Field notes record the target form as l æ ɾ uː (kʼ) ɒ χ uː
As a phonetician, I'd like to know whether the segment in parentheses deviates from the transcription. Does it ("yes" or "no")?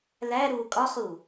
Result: no